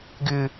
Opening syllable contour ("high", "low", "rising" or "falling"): high